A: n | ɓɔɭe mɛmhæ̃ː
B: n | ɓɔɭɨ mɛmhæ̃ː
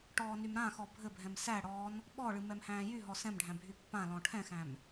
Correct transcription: B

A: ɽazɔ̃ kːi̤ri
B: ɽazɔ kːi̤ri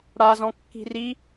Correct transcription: A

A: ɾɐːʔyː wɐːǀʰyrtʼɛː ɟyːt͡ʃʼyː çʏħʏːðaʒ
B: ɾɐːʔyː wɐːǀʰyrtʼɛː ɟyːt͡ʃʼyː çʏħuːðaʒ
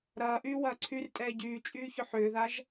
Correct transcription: A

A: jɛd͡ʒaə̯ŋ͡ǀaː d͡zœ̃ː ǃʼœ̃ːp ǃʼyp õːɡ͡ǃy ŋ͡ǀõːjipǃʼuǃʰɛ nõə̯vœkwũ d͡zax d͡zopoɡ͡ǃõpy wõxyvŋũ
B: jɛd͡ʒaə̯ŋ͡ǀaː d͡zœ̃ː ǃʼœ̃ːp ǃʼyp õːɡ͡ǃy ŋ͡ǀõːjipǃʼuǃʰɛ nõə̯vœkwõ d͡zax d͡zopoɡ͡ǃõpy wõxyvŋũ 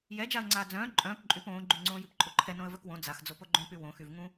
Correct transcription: B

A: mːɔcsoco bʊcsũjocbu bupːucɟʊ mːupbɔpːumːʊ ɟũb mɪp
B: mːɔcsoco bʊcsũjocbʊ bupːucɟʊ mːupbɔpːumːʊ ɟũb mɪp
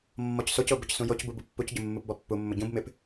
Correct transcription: A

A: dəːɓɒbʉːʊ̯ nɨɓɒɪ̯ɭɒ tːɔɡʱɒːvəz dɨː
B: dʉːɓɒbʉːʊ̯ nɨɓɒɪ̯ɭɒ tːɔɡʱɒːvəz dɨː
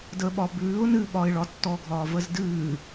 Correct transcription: A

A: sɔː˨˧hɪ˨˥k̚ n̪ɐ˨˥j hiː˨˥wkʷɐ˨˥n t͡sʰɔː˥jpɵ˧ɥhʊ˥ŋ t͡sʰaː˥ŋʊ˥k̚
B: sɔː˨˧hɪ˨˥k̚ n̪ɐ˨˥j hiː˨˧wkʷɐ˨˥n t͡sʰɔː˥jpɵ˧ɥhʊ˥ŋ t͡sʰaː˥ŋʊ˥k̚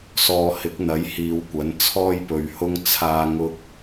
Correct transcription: B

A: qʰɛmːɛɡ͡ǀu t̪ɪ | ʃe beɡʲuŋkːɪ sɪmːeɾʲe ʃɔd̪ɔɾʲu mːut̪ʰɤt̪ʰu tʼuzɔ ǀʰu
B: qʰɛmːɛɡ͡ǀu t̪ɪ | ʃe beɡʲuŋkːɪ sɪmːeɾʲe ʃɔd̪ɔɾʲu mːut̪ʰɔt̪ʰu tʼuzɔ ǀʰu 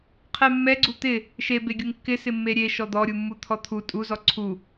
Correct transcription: B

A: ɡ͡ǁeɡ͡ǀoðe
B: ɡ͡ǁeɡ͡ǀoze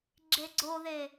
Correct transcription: A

